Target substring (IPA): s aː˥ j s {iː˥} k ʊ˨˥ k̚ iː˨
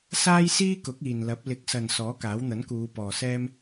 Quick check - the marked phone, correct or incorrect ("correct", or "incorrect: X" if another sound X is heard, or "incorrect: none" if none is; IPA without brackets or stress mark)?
correct